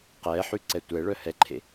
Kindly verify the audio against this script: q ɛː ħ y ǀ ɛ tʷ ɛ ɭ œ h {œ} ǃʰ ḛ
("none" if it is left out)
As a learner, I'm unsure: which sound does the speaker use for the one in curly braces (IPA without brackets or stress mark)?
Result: ɛ